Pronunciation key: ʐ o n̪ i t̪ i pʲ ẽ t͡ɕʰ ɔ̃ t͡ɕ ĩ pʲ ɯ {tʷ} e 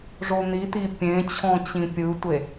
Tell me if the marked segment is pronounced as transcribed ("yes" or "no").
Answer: yes